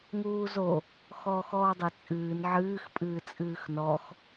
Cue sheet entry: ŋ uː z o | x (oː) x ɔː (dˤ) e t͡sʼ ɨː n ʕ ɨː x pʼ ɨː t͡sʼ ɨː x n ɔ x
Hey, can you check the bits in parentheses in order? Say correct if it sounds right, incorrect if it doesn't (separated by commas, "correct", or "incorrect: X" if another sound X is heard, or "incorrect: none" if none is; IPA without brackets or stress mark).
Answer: incorrect: ɔː, correct